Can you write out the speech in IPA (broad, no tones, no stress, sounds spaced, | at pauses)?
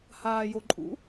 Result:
h aː j o ǃʼ ṵ